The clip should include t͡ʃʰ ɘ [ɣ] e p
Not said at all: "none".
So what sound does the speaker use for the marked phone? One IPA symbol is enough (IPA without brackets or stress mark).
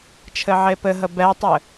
ʕ